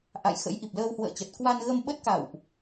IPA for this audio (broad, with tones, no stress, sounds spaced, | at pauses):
ʔ a̰˧˨ j x ə̰˧˥ j ʔ i˨˩ p̚ l əː˧ w h w ə̰ː˧˨ t͡ɕ ə˨˩ t̚ k w a˧ n ɣ ə˧ m ɓ ə˦˥ t̚ k a̰˧˨ w ʔ